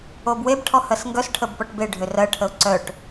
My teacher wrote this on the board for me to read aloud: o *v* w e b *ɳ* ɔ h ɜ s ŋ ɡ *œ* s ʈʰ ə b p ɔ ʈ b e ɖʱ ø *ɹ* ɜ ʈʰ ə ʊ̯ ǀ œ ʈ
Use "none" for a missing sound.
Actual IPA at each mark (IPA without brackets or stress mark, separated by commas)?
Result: b, ʈʰ, œ, r